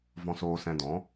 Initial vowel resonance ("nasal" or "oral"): nasal